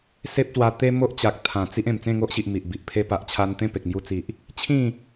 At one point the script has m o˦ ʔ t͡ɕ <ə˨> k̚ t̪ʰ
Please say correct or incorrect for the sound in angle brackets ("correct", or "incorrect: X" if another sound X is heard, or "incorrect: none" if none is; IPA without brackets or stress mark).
incorrect: a˨